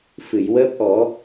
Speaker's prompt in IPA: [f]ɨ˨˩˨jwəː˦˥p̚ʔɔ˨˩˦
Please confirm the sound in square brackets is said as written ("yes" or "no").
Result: yes